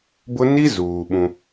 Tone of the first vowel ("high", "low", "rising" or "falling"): high